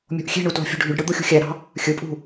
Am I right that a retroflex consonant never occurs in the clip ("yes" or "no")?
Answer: no